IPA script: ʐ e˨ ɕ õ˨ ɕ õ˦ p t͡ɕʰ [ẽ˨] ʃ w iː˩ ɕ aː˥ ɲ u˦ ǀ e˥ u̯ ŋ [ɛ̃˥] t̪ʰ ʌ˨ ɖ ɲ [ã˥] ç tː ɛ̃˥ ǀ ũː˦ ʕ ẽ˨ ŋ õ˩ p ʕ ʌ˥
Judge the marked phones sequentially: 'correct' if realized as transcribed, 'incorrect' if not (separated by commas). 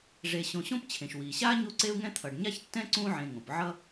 incorrect, correct, incorrect